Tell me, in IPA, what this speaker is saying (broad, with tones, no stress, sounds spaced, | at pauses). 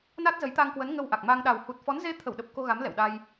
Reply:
n a˦˥ t̚ z ə˨˦ j t̪ a˧ ŋ k w ə˨˦ n ŋ ə˧ w ʔ a˨˩ k̚ m aː˧ ŋ ɗ a˨˩ w h u˨˩ t̚ f ɔ˨˦ n z e˨˦ t̪ʰ ə˧˩ w ɗ ə˨˩ p̚ k o˧ ɣ a˨˦ m l ɛ̰˧˨ w ɗ a˧ j